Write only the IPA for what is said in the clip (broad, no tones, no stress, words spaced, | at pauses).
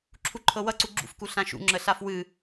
ǁʰuǃʰɤwʌǀu ɡ͡ǁṵfku ɬãʃṵ ŋ͡ǁəɬafwɨ